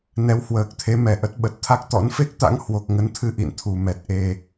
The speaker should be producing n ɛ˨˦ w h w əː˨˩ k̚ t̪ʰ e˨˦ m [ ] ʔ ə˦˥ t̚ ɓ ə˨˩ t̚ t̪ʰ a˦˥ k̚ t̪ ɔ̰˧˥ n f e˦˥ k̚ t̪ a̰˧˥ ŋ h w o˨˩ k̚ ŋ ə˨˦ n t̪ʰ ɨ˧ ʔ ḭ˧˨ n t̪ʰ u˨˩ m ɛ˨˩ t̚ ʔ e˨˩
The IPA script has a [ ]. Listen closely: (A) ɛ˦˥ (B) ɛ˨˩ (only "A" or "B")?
B